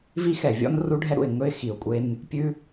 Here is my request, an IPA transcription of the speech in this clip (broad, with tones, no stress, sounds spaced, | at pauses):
v i˦ x ɛ˨ vʲ ɔ̰˦ n r u˦ ɖʱ ɛ˦ ɾ ṵ˨ ɪ̯ ŋ ɵ˦ ɪ̯ x i˨ ʊ̯ kʷʼ e˦ n | pʲ ʉ˦